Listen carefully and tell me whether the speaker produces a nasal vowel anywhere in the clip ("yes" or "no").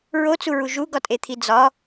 no